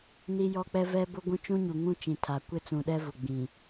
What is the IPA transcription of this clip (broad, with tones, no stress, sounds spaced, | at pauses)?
n i˦ j ɔ˦ k͡p ɛ˦ v ɛ˦ b ʊ˦ ɡʷ ũ˦ t͡ʃ ũ˦ ɲ u˨ ŋ ũ˦ t͡ʃ ĩ˨ tʰ a˨ kʷ ɪ˦ t͡s ũ˨ ɗ ɛ˦ v ʊ˨ ɡ͡b ĩ˨